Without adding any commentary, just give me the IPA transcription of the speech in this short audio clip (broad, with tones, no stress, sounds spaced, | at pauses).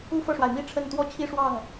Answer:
u˥˧ f ɤ˥˩ ʂ w a˩ ɪ̯ m i˥ ʈ͡ʂʰ ə˥˩ n t̪ w ɔ˥ t͡ɕʰ i˥˧ ʂ w ɑ˥˩ ŋ